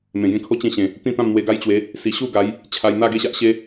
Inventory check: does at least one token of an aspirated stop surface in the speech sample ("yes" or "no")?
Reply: yes